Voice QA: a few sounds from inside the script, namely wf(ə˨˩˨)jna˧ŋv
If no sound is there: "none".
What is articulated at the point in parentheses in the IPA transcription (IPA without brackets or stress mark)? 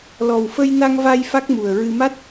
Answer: ə˧